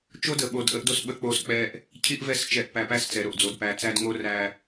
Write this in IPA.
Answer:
t͡ʃo˦də˨ ɓo˨dʔə˦ʔdo˦s ɓə˦k͡po˦sk͡pɛ˦ʔ | cʰi˦ʔvɛ˦˨st͡ʃɛ˨ʔpæ˨ pæ˦st͡sɛ˨ɾo˨ʔd͡zo˨d pæ˨t͡sæ˦dŋo˦ ræ˨

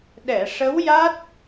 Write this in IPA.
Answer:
ɗɛ˨˩˨ʂə˧˥wja˦˥t̚

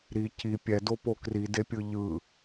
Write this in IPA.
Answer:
ɾi ci pʲɛdopo kridepʲɯ ʎɯ

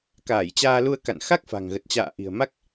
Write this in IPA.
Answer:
kaː˧˩jt͡ɕaː˧lu˧ə̯ ka̰˧˨nxa˦˥k̚fa̤˨˩ŋ ɣə˨˩t̚t͡ɕa̰ː˧˨ ʔi̤˨˩ə̯ma˦˥k̚

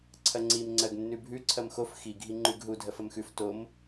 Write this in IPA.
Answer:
ǀʰɐŋ͡ǀim ŋ͡ǀɜɡnːʉbʱʉ ǀʰɐmxof xi ɡʱiŋ͡ǃʉɡɦu dʱɜfɐmxʉf tom

